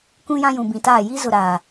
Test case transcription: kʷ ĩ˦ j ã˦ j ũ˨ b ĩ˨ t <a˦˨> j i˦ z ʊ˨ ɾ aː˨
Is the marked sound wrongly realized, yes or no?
yes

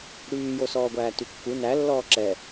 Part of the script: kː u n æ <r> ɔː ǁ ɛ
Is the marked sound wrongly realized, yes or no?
yes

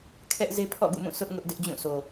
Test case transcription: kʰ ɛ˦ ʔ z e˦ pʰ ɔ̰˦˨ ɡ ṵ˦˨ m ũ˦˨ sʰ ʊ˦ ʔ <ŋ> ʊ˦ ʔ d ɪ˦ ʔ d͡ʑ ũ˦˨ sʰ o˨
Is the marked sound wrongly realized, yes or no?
no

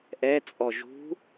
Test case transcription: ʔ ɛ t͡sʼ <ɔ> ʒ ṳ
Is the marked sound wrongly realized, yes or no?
no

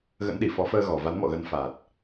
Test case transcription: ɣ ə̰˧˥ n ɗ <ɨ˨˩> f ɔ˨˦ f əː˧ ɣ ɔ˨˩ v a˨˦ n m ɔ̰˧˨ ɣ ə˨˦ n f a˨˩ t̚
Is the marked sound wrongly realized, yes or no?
yes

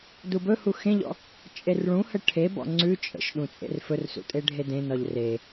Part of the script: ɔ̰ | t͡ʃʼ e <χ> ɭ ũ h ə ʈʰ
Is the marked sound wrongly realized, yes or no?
yes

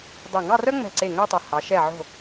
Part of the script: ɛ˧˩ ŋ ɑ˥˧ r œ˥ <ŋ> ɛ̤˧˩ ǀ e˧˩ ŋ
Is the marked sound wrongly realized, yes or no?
yes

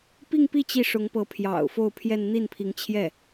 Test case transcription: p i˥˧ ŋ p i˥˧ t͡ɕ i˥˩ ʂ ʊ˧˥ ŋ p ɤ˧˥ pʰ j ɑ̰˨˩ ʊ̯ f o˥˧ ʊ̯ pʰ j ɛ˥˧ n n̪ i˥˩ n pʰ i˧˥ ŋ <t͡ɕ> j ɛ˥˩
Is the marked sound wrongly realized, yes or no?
yes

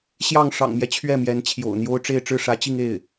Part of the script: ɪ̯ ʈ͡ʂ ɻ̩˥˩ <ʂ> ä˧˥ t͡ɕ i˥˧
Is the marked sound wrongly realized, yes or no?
no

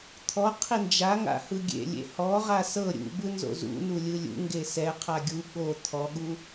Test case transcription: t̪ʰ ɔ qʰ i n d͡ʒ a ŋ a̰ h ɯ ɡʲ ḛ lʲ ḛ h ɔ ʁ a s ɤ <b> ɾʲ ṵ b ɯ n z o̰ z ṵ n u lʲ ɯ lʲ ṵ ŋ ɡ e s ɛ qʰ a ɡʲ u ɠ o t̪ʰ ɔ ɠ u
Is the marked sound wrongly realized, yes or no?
yes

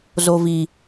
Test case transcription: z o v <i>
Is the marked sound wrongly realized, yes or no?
no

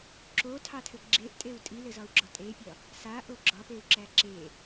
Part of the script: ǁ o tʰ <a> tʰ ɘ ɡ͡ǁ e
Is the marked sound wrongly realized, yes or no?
yes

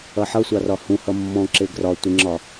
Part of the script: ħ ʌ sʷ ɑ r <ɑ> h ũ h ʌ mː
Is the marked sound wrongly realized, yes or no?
yes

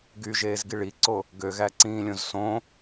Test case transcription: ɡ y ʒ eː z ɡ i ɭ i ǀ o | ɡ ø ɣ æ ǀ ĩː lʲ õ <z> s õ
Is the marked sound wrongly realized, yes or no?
no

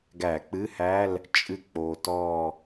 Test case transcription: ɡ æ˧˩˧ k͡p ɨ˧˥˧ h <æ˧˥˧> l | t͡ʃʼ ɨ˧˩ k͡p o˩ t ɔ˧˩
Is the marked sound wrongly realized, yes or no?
no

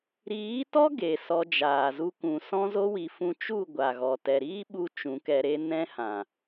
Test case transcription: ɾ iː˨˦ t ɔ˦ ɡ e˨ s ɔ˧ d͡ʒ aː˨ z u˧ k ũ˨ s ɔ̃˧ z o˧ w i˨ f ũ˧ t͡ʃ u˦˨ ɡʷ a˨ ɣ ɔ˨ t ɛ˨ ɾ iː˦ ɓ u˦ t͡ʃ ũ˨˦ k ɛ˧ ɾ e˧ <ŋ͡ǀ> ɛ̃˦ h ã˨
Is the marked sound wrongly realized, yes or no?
yes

